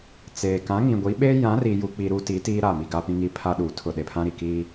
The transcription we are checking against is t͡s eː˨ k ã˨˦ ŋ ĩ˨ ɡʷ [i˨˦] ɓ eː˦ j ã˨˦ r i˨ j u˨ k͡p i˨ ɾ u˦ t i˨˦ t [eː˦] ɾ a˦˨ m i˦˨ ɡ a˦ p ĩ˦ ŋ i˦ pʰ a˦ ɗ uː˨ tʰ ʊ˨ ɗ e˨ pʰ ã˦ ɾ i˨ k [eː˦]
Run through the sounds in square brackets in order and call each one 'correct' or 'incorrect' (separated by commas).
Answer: correct, incorrect, incorrect